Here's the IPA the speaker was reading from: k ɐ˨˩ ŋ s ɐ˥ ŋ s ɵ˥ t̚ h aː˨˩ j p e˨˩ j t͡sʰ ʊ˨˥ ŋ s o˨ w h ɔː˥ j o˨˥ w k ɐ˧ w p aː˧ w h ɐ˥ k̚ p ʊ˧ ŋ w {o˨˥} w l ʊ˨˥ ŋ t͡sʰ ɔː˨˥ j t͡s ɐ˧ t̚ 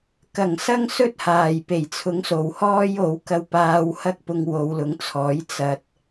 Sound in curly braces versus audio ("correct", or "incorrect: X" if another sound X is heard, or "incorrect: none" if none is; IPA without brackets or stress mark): incorrect: o˨˧